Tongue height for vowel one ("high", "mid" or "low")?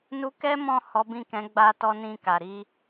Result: high